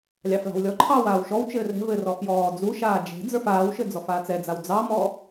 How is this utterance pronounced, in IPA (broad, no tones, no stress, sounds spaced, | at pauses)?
lʲ ɑ f l ɑ̤ w lʲ ɔ ǃʰ ɑː w aː w ʃ ɔ w t͡ʃ ɘː r ɛ̤ v ɘ r ɔ f j ɔː d͡z u ʃ aː d͡ʒ ɛ̤ d͡z ə˞ f aː w ʃ ɘ d͡z ɔ f aː t͡s ɛ d͡z a w d͡z ɑ m ɔ